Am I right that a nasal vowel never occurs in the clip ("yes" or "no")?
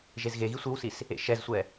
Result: yes